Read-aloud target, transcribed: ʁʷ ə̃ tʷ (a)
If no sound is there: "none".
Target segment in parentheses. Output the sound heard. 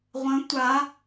a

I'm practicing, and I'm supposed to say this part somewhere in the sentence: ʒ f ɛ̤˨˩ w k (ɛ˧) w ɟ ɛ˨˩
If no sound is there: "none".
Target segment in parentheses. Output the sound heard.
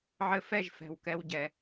ɛ˧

